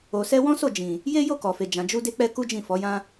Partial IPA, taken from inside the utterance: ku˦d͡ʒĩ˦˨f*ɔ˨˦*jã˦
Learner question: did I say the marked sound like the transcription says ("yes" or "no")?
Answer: yes